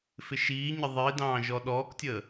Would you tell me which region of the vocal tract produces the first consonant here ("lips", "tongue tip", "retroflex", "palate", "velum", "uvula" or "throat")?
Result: lips